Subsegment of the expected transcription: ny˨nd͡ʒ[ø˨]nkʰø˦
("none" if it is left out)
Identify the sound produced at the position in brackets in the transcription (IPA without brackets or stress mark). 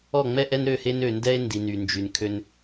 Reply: y˨